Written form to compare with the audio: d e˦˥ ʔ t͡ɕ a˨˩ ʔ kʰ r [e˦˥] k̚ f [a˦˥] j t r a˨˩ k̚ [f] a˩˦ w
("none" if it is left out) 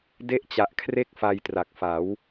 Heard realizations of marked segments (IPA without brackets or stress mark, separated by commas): e˥˩, a˧, f